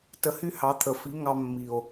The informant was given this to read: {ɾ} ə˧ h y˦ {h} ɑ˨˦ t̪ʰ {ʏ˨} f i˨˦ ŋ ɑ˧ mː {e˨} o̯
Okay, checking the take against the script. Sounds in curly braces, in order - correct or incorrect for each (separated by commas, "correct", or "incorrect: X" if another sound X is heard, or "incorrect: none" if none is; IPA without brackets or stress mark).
incorrect: t, correct, incorrect: ə˨, incorrect: i˨